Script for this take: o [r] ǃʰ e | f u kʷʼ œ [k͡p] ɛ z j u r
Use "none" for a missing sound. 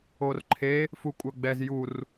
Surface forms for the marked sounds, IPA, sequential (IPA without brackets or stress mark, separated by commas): r, ɡ͡b